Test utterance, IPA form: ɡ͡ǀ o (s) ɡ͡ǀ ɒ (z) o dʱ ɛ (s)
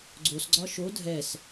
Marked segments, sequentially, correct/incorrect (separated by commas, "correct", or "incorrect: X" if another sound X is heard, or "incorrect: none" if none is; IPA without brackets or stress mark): correct, incorrect: ʃ, correct